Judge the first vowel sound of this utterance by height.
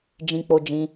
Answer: high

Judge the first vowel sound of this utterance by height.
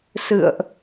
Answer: high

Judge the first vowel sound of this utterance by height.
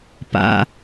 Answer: low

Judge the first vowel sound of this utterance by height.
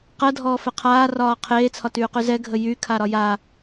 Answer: mid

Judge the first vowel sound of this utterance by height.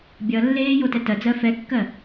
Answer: mid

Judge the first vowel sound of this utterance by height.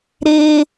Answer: mid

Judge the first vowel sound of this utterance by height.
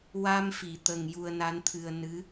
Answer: low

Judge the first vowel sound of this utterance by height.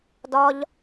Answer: low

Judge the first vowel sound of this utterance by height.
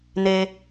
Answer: mid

